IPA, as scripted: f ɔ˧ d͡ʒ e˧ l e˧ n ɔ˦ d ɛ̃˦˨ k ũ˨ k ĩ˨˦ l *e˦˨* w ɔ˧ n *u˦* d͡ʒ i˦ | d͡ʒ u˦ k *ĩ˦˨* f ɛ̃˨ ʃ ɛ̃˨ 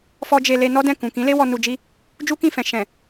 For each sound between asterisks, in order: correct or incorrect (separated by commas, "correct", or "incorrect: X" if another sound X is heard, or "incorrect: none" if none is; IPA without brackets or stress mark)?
incorrect: e˦, incorrect: u˧, correct